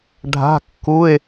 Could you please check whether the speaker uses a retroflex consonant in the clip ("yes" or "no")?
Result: yes